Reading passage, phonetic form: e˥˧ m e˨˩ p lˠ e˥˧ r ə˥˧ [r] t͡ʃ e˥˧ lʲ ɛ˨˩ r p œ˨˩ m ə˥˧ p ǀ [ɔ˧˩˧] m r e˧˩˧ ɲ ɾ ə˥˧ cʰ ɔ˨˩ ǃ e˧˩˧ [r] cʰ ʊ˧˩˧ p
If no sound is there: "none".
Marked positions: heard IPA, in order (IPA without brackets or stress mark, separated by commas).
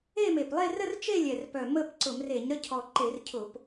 r, ʊ˧˩˧, r